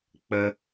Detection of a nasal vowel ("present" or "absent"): absent